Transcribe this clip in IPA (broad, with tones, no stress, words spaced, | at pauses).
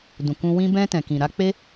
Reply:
dũ˨kũ˧ wĩ˧ bɛ̃˧tɛ̃˨kĩ˨ ɾa˧k͡pe˦